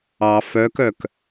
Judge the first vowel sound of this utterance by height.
low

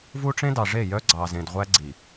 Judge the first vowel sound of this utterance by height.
high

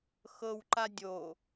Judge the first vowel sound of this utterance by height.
mid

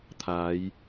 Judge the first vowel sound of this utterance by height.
low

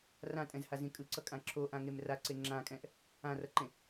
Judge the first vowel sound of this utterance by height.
low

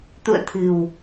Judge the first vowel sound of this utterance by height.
high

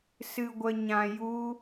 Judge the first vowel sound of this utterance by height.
high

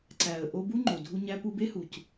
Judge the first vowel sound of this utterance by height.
low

